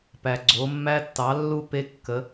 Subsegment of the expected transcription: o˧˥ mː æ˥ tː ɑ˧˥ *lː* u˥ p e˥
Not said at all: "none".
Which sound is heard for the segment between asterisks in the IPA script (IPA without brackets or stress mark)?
lː